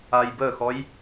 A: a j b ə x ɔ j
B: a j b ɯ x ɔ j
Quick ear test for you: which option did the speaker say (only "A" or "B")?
A